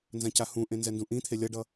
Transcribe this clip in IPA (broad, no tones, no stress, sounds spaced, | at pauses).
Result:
n z ã c a h ũ ʔ ẽ n z ɛ n d ũ ʔ ĩ t̪ʰ e lʲ ʌ ɖ ʌ